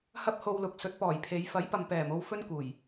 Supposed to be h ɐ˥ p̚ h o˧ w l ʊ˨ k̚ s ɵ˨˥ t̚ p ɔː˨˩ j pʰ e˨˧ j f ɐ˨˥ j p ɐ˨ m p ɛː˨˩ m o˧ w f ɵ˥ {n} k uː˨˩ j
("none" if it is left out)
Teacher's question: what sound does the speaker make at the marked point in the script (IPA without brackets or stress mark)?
n